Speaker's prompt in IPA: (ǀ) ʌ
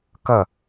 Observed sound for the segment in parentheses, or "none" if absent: k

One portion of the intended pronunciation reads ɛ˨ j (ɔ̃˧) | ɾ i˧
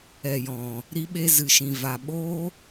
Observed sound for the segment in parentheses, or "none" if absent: ɔ̃˨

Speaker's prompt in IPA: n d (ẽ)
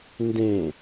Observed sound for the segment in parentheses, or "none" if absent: ẽ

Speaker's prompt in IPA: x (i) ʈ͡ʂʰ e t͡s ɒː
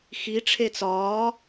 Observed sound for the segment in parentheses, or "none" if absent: i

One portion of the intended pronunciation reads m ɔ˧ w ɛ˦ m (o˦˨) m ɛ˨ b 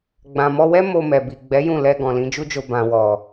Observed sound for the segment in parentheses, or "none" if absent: o˧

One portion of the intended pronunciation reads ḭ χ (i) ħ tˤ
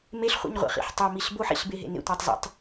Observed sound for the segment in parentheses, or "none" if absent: ḭ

